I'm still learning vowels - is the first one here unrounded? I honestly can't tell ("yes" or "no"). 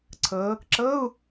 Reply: yes